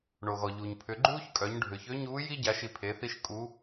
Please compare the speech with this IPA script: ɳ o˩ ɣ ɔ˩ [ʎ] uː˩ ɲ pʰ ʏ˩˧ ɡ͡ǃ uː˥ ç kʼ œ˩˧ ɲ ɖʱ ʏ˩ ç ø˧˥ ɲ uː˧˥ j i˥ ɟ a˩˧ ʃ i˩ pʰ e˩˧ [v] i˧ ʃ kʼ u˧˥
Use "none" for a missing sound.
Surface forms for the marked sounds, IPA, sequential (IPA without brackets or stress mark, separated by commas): ʎ, θ